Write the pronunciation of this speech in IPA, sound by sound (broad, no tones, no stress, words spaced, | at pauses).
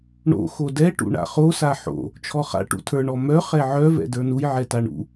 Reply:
ɳo̰ xodɛ ʈṵɳa̰χo saħo̰ | t͡ʃʰɔχa̰ ʈṵtʰə˞ɳ ɔmœ χɛʕœ vɛ̰də˞nuj ʕɛtaɳṵ